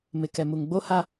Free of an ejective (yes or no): yes